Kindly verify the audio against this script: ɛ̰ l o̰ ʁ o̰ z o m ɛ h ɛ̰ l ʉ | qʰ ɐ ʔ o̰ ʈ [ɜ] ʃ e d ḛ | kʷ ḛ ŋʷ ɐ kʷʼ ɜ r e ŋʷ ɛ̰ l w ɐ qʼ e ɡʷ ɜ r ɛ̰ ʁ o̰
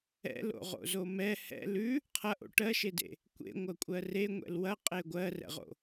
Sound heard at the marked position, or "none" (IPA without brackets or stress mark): ɜ